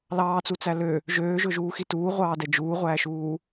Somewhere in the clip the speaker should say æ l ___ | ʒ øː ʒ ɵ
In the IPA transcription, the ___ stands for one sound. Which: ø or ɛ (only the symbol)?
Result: ø